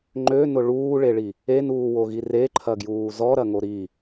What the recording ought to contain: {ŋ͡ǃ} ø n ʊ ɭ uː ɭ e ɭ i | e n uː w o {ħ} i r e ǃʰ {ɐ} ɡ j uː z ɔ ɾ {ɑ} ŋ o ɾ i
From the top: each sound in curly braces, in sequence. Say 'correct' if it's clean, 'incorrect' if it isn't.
correct, incorrect: ɣ, correct, incorrect: ɐ

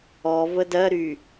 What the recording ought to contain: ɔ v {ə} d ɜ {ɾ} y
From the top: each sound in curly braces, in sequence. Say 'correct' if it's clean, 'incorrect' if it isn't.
correct, correct

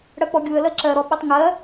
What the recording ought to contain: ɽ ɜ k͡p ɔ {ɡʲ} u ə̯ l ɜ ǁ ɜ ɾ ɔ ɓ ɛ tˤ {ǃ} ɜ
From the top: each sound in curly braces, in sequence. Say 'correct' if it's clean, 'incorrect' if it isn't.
correct, incorrect: ŋ

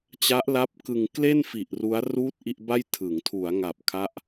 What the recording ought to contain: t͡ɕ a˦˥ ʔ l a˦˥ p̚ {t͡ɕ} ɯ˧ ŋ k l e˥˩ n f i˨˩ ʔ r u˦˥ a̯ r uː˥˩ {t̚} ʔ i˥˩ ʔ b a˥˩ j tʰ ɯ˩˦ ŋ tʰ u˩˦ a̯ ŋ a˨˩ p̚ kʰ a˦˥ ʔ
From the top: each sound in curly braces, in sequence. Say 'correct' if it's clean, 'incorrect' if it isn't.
incorrect: k, correct

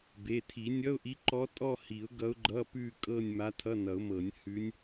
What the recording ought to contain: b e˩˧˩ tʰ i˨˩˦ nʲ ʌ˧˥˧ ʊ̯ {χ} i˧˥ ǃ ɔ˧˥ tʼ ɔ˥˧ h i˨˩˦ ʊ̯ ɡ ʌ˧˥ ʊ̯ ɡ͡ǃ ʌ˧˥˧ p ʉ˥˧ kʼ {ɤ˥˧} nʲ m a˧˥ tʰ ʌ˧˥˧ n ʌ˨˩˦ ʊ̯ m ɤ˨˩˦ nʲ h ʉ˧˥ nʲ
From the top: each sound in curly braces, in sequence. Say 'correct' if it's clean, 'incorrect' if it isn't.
incorrect: ʔ, correct

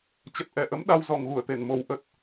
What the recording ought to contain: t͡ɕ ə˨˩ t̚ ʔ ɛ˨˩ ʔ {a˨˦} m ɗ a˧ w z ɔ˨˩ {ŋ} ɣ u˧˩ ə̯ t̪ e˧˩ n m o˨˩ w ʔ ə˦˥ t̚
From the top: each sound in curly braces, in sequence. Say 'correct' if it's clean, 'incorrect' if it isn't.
incorrect: ə˨˦, correct

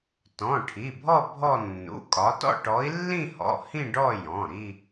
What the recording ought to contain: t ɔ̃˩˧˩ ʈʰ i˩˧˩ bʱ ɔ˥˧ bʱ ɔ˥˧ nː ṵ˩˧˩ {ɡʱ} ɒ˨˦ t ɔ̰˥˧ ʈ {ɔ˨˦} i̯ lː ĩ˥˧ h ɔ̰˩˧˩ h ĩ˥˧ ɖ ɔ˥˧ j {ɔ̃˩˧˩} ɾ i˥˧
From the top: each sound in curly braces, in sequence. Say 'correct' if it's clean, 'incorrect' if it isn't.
incorrect: kʼ, correct, correct

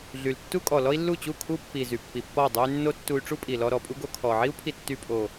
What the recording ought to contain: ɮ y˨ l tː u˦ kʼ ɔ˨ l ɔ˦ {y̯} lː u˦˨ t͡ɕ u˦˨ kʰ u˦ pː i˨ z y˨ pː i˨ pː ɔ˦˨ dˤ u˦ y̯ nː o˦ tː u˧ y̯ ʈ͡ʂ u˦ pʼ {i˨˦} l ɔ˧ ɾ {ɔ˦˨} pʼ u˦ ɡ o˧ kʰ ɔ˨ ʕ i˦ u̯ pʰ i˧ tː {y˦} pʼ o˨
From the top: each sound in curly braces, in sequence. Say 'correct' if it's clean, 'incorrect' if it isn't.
incorrect: i̯, incorrect: i˨, incorrect: ɔ˨, incorrect: y˧

